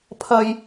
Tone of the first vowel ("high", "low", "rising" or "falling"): low